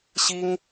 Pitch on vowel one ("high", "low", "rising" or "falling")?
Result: high